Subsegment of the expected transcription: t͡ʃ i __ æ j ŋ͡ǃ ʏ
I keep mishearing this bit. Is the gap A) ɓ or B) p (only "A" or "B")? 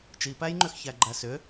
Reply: B